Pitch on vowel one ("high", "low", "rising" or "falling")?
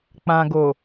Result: low